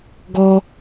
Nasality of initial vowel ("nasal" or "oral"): oral